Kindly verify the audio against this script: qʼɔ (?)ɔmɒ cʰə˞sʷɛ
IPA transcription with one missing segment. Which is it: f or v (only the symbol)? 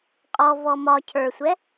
v